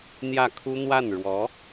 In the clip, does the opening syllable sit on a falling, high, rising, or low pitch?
falling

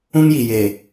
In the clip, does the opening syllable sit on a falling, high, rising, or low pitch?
high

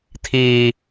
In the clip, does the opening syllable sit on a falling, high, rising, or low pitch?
high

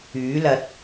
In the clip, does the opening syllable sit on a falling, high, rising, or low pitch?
rising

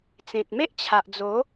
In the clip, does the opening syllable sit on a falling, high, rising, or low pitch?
low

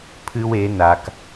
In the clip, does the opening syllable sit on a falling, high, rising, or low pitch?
high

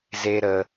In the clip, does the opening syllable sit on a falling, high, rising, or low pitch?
high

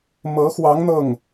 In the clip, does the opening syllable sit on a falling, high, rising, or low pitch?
rising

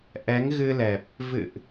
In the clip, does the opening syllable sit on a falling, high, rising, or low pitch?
rising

